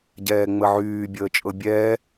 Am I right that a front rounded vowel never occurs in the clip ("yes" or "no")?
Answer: no